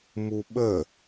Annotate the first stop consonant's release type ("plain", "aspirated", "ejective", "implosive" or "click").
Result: implosive